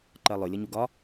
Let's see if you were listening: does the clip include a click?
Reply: yes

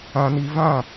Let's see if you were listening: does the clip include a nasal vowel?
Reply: yes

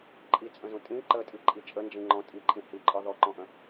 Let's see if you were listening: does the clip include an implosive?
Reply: no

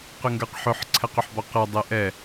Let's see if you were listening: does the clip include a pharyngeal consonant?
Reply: yes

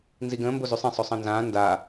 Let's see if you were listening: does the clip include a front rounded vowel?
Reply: yes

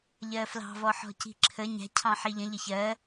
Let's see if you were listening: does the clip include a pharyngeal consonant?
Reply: yes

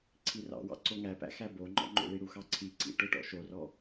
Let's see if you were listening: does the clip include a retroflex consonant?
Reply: yes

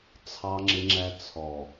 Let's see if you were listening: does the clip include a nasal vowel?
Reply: no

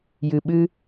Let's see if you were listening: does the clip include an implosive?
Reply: yes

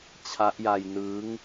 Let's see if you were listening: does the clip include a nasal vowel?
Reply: no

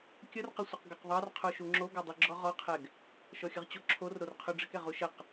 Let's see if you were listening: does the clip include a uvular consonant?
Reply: yes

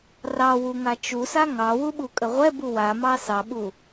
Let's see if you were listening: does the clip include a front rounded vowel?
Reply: no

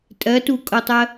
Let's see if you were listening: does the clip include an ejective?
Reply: yes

